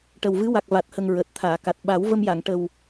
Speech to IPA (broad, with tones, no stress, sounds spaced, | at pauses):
ʈ ə˨˩ w v ɨ˧˥ w a˨˩ k̚ v a˨˩ t̚ h ə˨˩ ŋ ɹ əː˨˩ t̚ t̪ʰ aː˨˩˨ k a˨˩ t̚ ɓ a˨˩˦ w v ə˧ m j a˨˩˨ ŋ ʈ ə˨˩ w